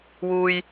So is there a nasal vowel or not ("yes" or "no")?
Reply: no